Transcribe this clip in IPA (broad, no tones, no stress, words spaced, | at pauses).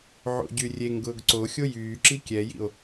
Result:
ʕo̰ɟyrʲeŋɡʊːɡ ǀoxʲo jyːǁi kʲɛjḭo̯